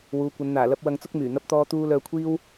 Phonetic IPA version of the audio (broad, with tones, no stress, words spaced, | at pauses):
wuː˨˧kʷɐ˨˧n n̪aː˨˩lɐ˧p̚ wɐ˧ŋt͡sʊ˥k̚myː˨˩ n̪ɐ˧p̚t̪ɔː˧t̪uː˧ lœː˧kʷʰiː˥w